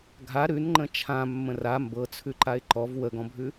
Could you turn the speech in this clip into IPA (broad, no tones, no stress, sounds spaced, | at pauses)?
ɡʱ a ɾ ʉ n ŋ͡ǃ ə̃ t͡ʃʰ ã mː ə̃ r a m b ɤ t͡sʰ ʉ ǃ a ɪ̯ ǃ ɔ v w ə ɡ ɔ̃ bʱ ʉ